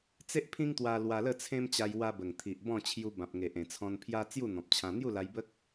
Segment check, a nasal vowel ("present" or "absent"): present